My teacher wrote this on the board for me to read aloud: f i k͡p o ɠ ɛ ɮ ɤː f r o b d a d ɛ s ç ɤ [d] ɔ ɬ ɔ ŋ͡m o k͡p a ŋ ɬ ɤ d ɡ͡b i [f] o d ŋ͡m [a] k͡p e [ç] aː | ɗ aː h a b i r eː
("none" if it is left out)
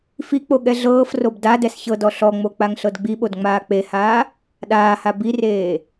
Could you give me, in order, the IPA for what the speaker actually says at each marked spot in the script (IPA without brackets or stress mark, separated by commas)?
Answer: d, ɓ, aː, h